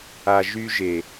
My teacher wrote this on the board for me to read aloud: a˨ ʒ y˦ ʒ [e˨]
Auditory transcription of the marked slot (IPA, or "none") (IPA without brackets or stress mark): e˨